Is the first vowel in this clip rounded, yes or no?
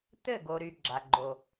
no